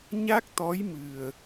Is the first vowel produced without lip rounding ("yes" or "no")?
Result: yes